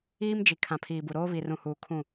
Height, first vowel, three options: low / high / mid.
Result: high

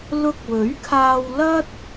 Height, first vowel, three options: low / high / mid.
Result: high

